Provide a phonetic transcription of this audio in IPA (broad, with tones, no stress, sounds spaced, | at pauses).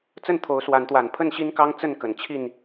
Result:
t͡s ə˥˨ n t̪ʰ o˨˦ ʊ̯ s w a˨˦ n t̪ w a˨˩ n pʰ ə˥˨ n ɕ i˦ n k ɑ˦ ŋ t͡s ə˥˨ n k ə˨˩ n t͡ɕʰ i˥˨ n